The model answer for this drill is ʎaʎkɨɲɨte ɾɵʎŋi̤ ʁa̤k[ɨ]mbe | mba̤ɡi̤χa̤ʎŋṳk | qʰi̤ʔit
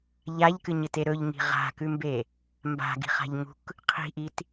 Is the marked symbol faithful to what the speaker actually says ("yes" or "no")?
no